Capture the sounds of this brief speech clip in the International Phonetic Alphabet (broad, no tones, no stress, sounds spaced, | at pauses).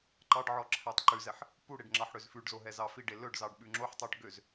ǃ ɑ ɖ ʕ ɔ ǁʰ æ tˤ ǃ ʉ z ɛ ħ | p u ɽ e ɖ ŋ͡ǁ ɑ ħ ɽ ø z f ʉ ɖ z o ɦ ɛ z ɑ f i ɖ e l ɵ ɖ z ɑ ɖ ɓ ʉ ŋ͡ǁ o ħ tˤ œ ɖ ɡ ø z